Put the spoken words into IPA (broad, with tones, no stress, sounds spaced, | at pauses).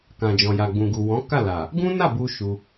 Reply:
k ã˨ d͡ʒ ɔ̃˨ j a˨ ɡ͡b ũ˨ ɡ u˨ w ɔ̃˨˦ k a˦˨ l a˨ | ɡ ũ˦ n a˦˨ b u˧ ʃ u˧